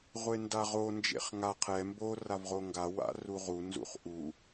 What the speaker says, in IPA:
ʁʷendaʁo nd͡ʒḛχŋa qʰɛ mbo ravʁoŋɡa wa̰ruʁu nzṵχʔu

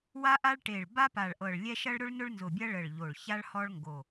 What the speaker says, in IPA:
wa˥ʔa˥ɭ ʈe˧˩ɭba˥ pa˧˩ɭʔɤ˧˩ɭlʲɛ˥ ʃɐ˥ɭɾʊ˥ɭ nʊ˥ɭnzʊ˧˩bʲɐ˥ ɭə˧˩ɭ ʎo˧˩ɭça˥ɭ hɔ˥ɭŋɡo˧˩

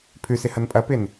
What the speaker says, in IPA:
pʰʉsɪ hɐnpʼɐpɪn

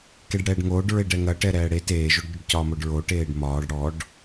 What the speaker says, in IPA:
keɖɽɛːɖŋoːɖɹeɖ ɛŋɐʈɛ ɾɛːɽe teːʒoɖɟɵɖcɒː moɖɹo ʈeːɖmɒːɖ ɽɔɖ

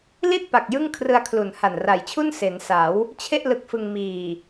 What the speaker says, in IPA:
li˥˩t̚pa˨˩k̚ jɯ˥˩ŋkʰrɯ˧a̯ kʰlu˨˩nha˨˩nra˨˩jt͡ɕʰu˥˩n se˩˦nsa˩˦w | t͡ɕʰe˥˩ʔ lɯ˦˥k̚fɯ˧ŋ miː˨˩

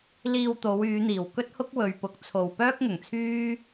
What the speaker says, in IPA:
liː˧wt̪o˨˧wyː˨˧n̪iː˨˩w kɵ˥t̚hʊ˥k̚ wɵ˨ɥpʊ˨˥k̚ t͡sʰo˨w pœː˥k̚ŋʊ˨˩ŋt͡sʰyː˥

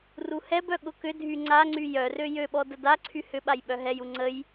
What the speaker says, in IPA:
ruhɛbœ ɠʊkʏdʱy ŋ͡ǀaŋ͡ǀy jœrø jøɓɔ dədaǀʰy hʏɓaj ɓœɦɛju ŋ͡ǀəj

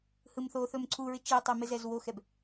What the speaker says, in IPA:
hɯmθoθɵm ǀʰuɹɪ t͡ʃɪʊ̯tˤe mezɛzwoxɛb

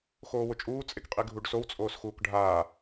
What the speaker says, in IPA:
xoːwʊt͡ʃʼuː t͡sʼekqʼiɡʱuɖsow t͡sʼoːsxuːkɖʱaː

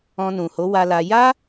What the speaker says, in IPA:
ɔ̃˧nũ˨ho˨˦ wa˧la˧ ja˦

